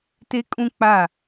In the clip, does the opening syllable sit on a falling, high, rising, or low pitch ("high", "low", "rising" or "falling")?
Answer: high